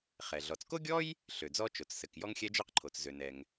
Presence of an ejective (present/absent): absent